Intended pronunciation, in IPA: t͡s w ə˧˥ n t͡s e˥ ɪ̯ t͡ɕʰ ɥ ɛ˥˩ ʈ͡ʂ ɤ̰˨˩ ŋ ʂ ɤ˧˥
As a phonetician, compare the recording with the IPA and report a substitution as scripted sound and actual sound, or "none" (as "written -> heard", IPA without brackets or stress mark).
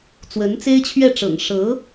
none